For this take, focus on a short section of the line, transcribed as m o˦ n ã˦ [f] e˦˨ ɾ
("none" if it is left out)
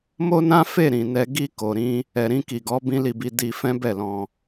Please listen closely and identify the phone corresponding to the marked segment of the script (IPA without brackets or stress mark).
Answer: f